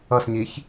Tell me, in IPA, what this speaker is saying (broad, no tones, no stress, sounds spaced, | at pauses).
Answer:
ʌ s ɲ i ç